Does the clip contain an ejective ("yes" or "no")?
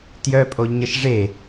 yes